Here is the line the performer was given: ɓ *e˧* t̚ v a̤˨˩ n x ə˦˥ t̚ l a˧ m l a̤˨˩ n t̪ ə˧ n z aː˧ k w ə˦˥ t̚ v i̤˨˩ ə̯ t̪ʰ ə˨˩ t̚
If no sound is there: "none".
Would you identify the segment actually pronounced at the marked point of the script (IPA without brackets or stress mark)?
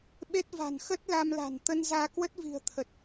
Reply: e˦˥